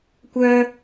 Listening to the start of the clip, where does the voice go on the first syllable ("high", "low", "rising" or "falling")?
high